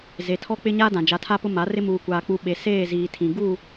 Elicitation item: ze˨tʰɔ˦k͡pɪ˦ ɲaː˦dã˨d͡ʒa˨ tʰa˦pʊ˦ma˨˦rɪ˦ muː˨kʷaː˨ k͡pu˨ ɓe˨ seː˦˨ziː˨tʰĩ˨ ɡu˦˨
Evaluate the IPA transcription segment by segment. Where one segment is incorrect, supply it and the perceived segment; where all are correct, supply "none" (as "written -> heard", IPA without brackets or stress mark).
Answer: none